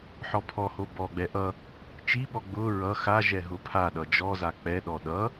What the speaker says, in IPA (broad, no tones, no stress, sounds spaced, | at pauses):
ħ ɔ pʰ ɔ h o b ɔ ɡ͡b ɛ ʔ ʌ | t͡ʃ i ɓ ɔ ɡ͡b ʊ ɹ ʌ x a ʒ ɛ ɦ ʊ pʰ a ɗ ʌ d͡ʒ ɔ z a k͡p ɛ ɗ ɔ ɗ ʌ